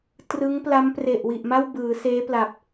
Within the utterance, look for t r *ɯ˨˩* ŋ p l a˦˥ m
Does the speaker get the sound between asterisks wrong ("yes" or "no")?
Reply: yes